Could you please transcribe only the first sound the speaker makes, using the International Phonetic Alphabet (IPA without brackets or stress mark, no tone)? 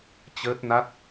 t͡ɕ